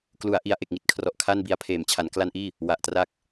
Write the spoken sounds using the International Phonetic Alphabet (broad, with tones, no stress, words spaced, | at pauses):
klu˩˦a̯ʔi˩˦a̯ ʔe˨˩k̚ŋi˦˥t̚kʰrɔ˨˩ʔ kʰa˥˩nbi˦˥a̯ pʰeː˩˦mt͡ɕʰa˩˦nkla˦˥nʔiː˥˩ | wa˨˩ʔtraː˦˥k̚